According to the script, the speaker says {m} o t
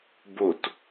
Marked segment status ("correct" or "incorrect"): incorrect